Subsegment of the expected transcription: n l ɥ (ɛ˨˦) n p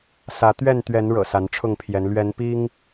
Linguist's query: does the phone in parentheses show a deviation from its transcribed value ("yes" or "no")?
no